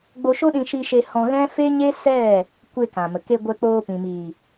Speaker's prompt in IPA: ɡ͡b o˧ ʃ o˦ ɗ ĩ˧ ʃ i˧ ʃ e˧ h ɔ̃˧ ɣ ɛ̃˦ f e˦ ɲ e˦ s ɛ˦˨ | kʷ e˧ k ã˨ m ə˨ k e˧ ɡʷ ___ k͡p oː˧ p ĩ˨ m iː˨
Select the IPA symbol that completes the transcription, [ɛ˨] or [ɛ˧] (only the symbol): ɛ˧